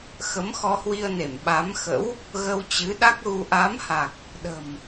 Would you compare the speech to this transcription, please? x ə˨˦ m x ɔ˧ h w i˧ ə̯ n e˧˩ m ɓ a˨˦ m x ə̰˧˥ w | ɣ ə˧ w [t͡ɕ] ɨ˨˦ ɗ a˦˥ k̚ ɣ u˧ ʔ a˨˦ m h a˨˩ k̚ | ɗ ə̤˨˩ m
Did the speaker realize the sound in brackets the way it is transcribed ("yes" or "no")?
yes